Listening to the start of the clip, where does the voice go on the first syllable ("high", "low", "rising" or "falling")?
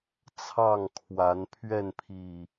falling